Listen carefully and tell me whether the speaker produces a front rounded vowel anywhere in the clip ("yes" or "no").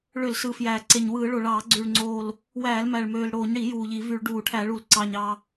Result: yes